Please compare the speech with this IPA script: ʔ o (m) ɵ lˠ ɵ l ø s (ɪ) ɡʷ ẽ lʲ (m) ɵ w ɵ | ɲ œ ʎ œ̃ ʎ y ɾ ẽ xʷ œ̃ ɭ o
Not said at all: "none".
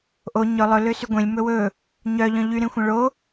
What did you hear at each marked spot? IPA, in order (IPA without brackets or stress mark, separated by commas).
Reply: ɲ, y, m